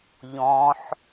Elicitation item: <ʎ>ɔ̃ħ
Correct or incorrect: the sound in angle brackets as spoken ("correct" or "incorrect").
correct